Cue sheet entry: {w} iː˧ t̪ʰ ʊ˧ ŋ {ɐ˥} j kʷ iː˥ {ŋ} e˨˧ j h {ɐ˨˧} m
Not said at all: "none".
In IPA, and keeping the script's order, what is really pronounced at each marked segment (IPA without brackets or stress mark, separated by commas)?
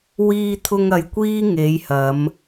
w, ɐ˨, ŋ, ɐ˨˧